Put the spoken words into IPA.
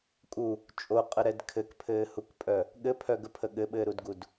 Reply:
kʼ u | t͡ʃʼ o qʼ ə ɾ ɛ d kʰ ɘ k pʰ ɘː h u k pʼ œ | ɠ ɘ pʰ œ ɡ ə pʰ ə ɠ ɘ ɓ ɘː ɾ u d ɡ u d

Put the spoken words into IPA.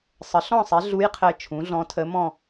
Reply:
sˤ ə˩˥ ɬ ɔ̃˥˨ sˤ ɛ˩˥ ɮ u˧˥ j qʰ ɘ˧ t͡ʃʰ ũ˩˥ ɮ ɔ̃˧˥ tʰ ə˧˥ m ɔ̃˥˨

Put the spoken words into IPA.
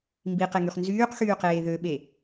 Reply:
m b i q e ŋ y χ n z yː q x yː q eː ð ø ɓ e

